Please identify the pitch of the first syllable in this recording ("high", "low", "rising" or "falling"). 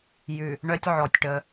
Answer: low